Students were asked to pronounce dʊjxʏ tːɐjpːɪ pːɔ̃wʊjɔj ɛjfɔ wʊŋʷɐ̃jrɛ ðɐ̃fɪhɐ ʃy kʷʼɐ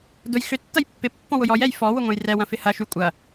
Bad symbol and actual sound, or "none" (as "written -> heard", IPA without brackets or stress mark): ð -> w